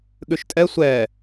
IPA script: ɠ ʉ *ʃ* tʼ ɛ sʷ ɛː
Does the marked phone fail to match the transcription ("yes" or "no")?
no